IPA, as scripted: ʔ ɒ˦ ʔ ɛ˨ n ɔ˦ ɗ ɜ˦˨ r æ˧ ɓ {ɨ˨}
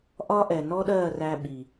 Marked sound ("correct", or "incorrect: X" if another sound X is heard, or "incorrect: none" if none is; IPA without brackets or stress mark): incorrect: i˨